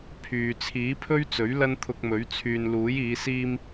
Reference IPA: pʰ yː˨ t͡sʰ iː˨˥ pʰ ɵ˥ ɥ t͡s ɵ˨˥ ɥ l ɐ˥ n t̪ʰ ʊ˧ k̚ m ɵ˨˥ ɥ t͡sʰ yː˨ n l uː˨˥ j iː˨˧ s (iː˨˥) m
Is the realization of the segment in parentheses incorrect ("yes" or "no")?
yes